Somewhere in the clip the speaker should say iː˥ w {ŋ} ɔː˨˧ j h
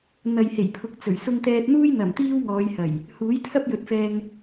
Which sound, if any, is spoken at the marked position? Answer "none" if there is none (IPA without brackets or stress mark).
ŋ